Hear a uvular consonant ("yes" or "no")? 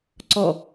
no